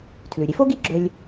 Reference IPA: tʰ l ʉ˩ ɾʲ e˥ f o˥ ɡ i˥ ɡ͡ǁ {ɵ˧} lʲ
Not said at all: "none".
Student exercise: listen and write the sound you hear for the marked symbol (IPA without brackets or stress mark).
ɵ˧